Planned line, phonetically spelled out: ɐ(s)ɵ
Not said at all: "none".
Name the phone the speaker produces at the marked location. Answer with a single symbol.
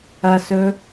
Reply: s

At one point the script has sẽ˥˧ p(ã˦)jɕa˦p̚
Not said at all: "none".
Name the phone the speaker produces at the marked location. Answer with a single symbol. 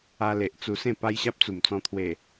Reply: a˦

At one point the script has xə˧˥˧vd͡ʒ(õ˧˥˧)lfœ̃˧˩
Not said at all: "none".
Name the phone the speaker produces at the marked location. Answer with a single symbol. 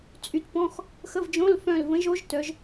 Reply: õ˧˥˧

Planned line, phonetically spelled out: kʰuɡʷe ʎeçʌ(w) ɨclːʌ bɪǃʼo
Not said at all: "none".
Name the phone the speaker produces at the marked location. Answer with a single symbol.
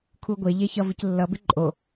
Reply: v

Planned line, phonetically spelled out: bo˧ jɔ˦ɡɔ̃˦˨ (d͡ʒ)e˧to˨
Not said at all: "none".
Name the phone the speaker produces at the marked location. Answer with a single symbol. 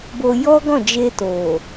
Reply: d͡ʒ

